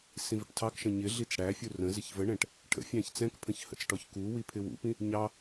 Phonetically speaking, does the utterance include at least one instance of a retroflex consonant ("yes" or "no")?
yes